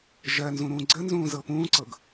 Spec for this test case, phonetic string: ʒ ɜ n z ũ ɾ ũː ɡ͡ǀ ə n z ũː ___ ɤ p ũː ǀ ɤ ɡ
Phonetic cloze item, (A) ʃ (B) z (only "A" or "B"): B